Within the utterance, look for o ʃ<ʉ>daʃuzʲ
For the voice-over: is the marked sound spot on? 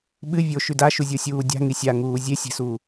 yes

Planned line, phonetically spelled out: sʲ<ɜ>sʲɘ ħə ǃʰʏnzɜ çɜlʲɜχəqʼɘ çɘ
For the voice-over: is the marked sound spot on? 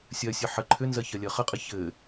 yes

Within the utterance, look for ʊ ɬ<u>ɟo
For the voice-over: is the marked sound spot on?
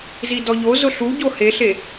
yes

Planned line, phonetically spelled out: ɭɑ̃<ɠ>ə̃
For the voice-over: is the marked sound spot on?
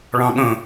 yes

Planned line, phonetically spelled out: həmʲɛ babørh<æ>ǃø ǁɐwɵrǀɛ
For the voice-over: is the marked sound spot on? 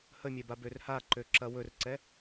no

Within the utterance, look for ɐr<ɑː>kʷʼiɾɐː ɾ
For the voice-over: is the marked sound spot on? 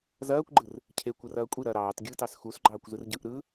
no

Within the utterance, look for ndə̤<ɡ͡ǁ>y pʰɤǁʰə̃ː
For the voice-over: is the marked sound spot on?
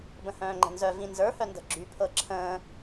yes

